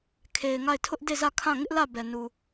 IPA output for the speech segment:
kʰ e˨ ɪ̯ ŋ a˦˨ ɪ̯ tʰ ʊ˦ ʔ d e˦˨ z ä˦˨ kʰ ã˦˨ ŋ ɪ˦ ʔ l ä˦˨ b ɛ˨ n u˨

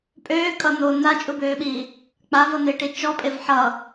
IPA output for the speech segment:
pʼ øː kʼ ʌ n̪ oː n̪ a t͡ʃʼ u b øː ɓ i | k͡p a v ʌ n̪ ɪː ʈ i t͡ʃ ɔ pʼ e v ħ ʌ

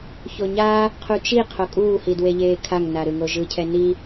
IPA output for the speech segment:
ç o ɲ a | qʰ u t͡ʃ i qʰ o kʼ uː h i d w e ʎ eː kʰ a ŋ n a ɾ ɯ ŋ o ʒ ɯ cʰ ɛ n i

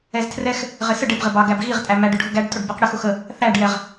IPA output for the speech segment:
ɛ z tʰ r ɛ x | ʁ ɪ s ə ɖ ɪ b ʁ ɪ b ɑ ɡ æ b ɣ i ʁ tʼ æ m æ ɖ ʊ ɖʱ ʊ ɡ æ ɖ tʼ ʊ ɖ b ɛ q ɽ ə x ʊ x ə | θ æ ɖ j ɛ ʁ

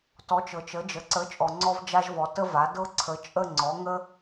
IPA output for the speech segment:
t ɔ˨˥ t͡ʃ ɤ˨ t͡ʃ ə˨˥ d͡ʒ ə˨ ǀ ə˨˥ t͡ʃʼ ɔ˨ ŋ͡ǀ ɔ˥ v d͡ʒ a˥ ʒ v ɔ˨˥ t ə˥ v a˨˥ d ɤ˥ ǀʰ ə˨˥ t͡ʃʼ ə˥˧ ŋ͡ǀ ɔ˨˥ ŋ ə˥

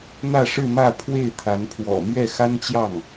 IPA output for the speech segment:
n̪ ä˥˧ ʂ ɻ̩˥˧ m ä˥˧ pʰ w e˥˩ ɪ̯ t̪ʰ a˧˥ n pʰ w ɔ̰˨˩ m ɥ ɛ˥˩ x a˥ n t͡ɕ j ɑ˥˩ ŋ

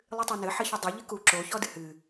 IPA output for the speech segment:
lˠ ɨ tˤ o n ɘ ħ ɘ ç ɘ dˤ ɨ ʎ ɨ k u ǁ o ç ɔ d ɨ h ɨ

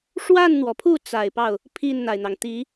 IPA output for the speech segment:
ʂ w a˥˩ n n̪ w ɔ˩ pʰ u˥˩ t͡s a˨˩ ɪ̯ p ɑ˥˩ ʊ̯ | pʰ i˥˩ n n̪ a˩ ɪ̯ n̪ ɑ˩ ŋ t̪ i˧˥

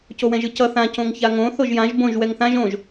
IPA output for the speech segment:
c o w ɛ̃ ʒ ɯ c ʌ θ ã c õ ŋ ç a ŋ õ θ o ʒ j ã ʒ b õ ʒ w ɛ ŋ θ ã ʒ õ ʒ

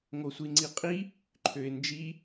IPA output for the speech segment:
ŋ o sʷ i ŋ͡ǀ i qʼ i | ǃʰ ø ɪ̯ n d͡ʒ i

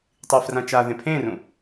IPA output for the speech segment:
tˤ i f r ã t͡ʃ a ð ẽ pʰ ẽ r ũ

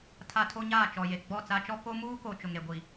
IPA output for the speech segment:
tʰ a˨ tʰ o˦ ɲ aː˦˨ t͡ʃ ɔ˨ j e˨ ɡ͡b ɔ˦˨ t͡s a˦ t͡ʃ ɔ˦ k o˦ m uː˦ k o˨ t͡ʃ ʊ˨ ŋ ɾ e˨ ɡʷ i˨

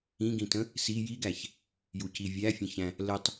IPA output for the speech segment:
ĩ ɡ ĩ t ə̃ | s i j i ɡ æ ç | j u c i vʲ æ fʲ ə̃ ç æ̃ | l ə tˤ

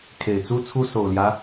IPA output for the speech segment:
kʰ e˨˩ ɪ̯ t͡s u˥ t͡sʰ u˥ s o˨˩ ʊ̯ l j ä˦

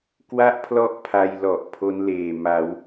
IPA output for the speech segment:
k w a˥˩ ʔ pʰ l ɔ˦˥ ʔ pʰ a˧ j l ɔ˨˩ ʔ pʰ o˦˥ n l eː˨˩ m a˩˦ w

